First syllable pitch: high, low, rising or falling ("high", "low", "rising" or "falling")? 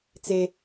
high